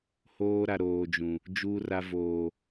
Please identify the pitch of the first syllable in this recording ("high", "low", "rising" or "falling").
high